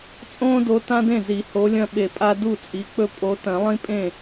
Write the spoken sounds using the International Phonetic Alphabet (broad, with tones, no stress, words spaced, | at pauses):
t͡sʼõː˦do˨˦ tã˦dẽ˥˩zi˨˩˦ ho˨˦lʲɐ̃˦ɓe˧˩pʼa˦ du˥˩t͡sʼi˨˦k͡pɵ˦ pʼo˨˦tɐ̃˨˩˦lˠĩ˦pʼẽ˥˩